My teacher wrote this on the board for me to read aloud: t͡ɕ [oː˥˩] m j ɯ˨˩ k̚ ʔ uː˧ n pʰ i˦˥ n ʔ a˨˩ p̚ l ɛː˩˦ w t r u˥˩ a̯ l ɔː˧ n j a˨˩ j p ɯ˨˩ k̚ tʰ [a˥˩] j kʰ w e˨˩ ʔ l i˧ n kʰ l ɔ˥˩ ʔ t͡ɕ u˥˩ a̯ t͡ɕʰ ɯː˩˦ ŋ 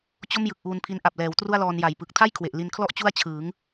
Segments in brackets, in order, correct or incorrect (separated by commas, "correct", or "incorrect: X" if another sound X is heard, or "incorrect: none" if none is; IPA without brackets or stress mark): incorrect: o˥˩, correct